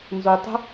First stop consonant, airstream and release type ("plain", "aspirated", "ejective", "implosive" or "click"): plain